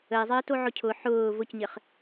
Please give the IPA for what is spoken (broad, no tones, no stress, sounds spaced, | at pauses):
ə ɪ̯ zˤ ɘː t o ʕ ʊ cʰ ʊ ħ ʊː v ʊ c ɲ ɘ χ